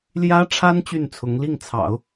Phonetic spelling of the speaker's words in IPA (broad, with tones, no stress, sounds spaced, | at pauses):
l j ä˥ ʈ͡ʂʰ a˥ n t͡ɕ y˥˩ n t͡sʰ ʊ˧˥ ŋ l i˥˩ ŋ t͡sʰ ɑ̰˨˩˦ ʊ̯